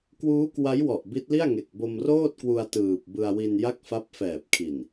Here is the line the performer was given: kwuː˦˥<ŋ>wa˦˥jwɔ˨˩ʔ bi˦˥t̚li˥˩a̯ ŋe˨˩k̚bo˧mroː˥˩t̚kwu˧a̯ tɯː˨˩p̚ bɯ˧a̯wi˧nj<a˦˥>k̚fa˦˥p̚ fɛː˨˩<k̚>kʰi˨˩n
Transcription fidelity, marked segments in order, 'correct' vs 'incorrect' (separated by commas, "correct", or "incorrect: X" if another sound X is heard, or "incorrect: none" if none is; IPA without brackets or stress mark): incorrect: k, incorrect: a˥˩, incorrect: p̚